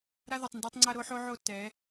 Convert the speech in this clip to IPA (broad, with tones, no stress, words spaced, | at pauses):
ɾa˦ðo˨tˤndɛ˦tˤŋ͡ǀa˦ ɾo˦ħo˦ʕo˦˨ tɛ˨˦